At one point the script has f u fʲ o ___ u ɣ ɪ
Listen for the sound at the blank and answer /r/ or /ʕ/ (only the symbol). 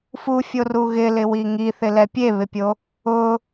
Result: r